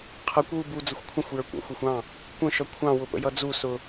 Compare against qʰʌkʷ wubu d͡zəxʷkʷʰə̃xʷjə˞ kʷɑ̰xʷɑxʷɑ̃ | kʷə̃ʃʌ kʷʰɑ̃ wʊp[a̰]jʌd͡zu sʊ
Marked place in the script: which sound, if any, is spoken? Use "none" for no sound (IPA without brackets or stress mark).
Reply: ə̰